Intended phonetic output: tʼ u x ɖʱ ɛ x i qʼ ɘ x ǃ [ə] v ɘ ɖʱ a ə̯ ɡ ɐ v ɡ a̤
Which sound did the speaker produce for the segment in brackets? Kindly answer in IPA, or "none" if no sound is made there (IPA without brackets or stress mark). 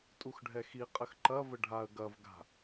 ɐ